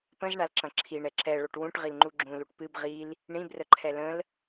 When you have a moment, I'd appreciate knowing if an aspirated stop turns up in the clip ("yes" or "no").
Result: yes